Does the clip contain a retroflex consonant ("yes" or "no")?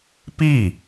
no